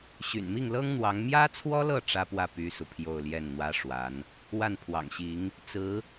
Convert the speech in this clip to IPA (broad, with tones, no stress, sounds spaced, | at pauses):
ɕ y̰˨˩ n m i˥˩ ŋ l ɤ˥ ŋ n̪ w ɑ˧˥ ŋ m j ä˥ t͡sʰ w ɔ˥ l ɤ˥˩ ʈ͡ʂ ä˥ p w ä˥˩ p y˥ s u˨ pʰ j o˥˧ ʊ̯ l j ɛ˥˩ n n̪ w ä˥ ʂ w a˧˥ n | w a˥˩ n pʰ w ɑ̰˨˩ ŋ ɕ i˧˥ ŋ | t͡s ɹ̩˧˥